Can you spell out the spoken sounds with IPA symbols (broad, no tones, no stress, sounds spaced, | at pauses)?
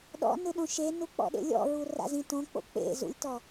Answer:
ɗ ɔ̰ n ɯ ɗ õ ʃ e n u k͡p ɔ̰ ɗ ḛ lʲ ɔ̰ ɹ u r a̰ z ĩ t õ k͡p o̰ k͡p ḛ z ṵ lʲ t ɔ